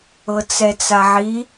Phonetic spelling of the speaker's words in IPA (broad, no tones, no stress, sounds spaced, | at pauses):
ɤ t͡s ɛ t͡s a ʕ i